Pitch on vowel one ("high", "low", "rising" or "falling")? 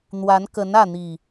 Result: rising